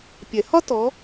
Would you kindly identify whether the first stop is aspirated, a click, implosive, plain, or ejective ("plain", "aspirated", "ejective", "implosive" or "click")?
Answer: plain